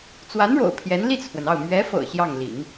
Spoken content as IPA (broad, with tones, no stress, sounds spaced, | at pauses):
t͡s w a˧˥ n ɻ o̰˨˩ ʊ̯ pʰ j ɛ˧˥ n l i˥˩ t͡sʰ w ə˩ n ɑ˥˩ ʊ̯ m ɥ ɛ˧˥ f ɤ̰˨˩ ɕ j ɑ˥˩ ŋ l ḭ˨˩˦ ŋ